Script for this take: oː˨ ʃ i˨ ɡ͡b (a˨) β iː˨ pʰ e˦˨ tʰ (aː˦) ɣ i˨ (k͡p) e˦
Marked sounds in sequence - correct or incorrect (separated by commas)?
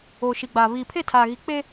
incorrect, incorrect, correct